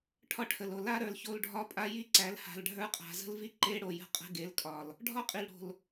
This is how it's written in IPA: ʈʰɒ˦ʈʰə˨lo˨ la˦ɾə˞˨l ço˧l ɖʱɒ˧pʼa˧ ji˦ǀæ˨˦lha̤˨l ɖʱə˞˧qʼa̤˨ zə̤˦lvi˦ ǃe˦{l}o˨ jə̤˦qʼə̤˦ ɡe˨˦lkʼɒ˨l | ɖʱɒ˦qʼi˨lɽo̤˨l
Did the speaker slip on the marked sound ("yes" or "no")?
yes